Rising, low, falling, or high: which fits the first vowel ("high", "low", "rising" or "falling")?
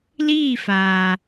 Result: falling